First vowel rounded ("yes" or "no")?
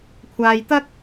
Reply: no